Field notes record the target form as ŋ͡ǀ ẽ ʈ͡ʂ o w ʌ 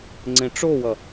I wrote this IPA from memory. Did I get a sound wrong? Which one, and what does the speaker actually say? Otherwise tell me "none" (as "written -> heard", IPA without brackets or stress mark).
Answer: none